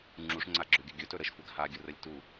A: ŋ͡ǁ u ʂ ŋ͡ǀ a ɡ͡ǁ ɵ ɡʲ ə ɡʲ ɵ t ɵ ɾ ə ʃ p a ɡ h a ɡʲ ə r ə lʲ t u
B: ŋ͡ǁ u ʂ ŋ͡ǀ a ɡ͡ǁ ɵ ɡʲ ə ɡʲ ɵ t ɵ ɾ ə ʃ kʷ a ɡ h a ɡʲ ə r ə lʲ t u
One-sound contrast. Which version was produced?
B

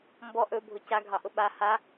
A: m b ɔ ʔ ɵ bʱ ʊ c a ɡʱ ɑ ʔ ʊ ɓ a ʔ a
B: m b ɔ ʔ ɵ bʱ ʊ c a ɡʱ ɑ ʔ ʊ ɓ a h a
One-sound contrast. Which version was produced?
B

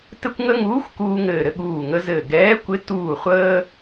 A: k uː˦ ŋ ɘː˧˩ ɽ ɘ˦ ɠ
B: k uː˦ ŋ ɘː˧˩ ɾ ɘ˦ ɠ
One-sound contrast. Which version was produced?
B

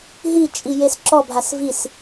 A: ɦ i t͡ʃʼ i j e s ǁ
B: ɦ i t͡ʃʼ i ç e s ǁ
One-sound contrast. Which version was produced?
A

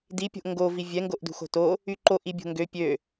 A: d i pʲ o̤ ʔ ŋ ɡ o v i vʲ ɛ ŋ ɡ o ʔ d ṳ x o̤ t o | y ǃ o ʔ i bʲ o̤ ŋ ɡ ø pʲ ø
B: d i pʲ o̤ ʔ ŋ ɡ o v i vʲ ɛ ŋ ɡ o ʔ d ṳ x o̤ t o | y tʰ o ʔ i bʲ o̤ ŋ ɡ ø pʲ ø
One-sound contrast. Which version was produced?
A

